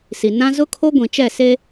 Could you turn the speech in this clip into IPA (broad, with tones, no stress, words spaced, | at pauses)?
si˨nã˦ zʊ˦kʰo˦ɡʷĩ˨t͡ʃɛ˦˨ se˦